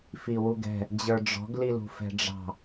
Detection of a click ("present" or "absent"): absent